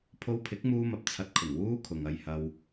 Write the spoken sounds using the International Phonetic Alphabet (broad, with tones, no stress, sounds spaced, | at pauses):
pʰ o˧ w pʰ ɪ˨˥ k̚ m uː˧ m ɐ˨ p̚ t͡sʰ ɐ˧ t̚ kʰ ʊ˨˩ ŋ w uː˥ kʰ ʊ˨ ŋ ɐ˧ j h ɐ˧ w